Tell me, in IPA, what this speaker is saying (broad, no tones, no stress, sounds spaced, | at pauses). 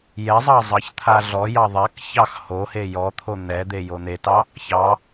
j ɛ zˤ ɑ zˤ ɑ ç t̪ʰ a ɮ ɔ j ɑ ðˤ a k ç ɑ x h o h e j ɔ t̪ʰ o n̪ ɛ d̪ e j o n̪ e t ɑ | ç ɑ